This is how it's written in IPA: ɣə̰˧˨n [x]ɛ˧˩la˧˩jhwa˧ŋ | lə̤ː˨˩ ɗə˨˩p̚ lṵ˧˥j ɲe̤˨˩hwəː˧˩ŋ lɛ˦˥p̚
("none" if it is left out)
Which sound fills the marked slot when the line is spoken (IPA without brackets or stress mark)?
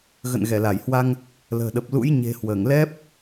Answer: ɣ